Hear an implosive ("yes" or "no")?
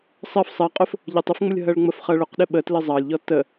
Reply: yes